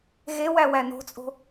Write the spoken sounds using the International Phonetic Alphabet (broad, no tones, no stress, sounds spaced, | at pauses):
ɣ e w æ w æ n o̤ t͡sʼ o̤